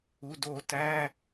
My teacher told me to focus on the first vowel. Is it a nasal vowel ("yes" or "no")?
no